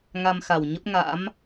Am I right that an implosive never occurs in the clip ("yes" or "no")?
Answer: yes